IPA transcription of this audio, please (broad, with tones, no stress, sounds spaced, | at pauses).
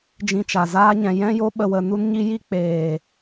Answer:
d͡ʒ ĩ˧ t͡ʃ a˨ z aː˦ ɲ ɛ̃˨ j ɛ̃˧ j o˧ ɓ ə˨ w ə˨ n u˧ n ɲ i˧ j i˧ k͡p eː˨